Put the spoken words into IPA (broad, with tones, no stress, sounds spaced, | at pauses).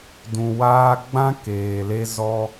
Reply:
d ũ˨ w aː˦ ɡ͡b ã˦ k eː˨ l e˦ z ɔ˦